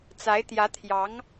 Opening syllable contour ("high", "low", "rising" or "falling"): rising